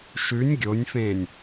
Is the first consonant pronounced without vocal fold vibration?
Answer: yes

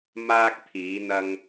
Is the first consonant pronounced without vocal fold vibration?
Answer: no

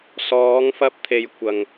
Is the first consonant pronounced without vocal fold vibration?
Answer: yes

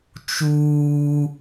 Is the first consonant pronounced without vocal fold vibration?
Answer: yes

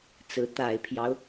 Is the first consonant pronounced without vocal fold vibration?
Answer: yes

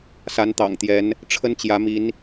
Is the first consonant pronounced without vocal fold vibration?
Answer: yes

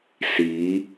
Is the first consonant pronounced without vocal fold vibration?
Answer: yes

